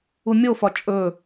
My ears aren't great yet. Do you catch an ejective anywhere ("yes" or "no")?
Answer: yes